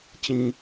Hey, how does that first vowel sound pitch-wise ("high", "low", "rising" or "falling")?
low